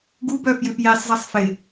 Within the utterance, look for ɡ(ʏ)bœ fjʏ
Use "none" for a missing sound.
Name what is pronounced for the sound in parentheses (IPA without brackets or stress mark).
u